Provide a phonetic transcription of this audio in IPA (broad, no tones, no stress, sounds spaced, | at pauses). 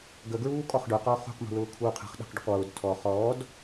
ɡ ə ɡ ɹ uː kʼ ɔ χ ɖ ʊ q ɔː χ ṳ q m ṳ l ʊː kʰ uː qʰ ə̤ χ ɗ ə̤ q ɖ ʏ q w ʊː d tʰ ɔ χ ɔː d